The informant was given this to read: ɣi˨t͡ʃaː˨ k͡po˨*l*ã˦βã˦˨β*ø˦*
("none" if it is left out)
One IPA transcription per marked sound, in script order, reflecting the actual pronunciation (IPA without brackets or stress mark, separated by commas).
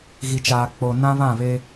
n, e˦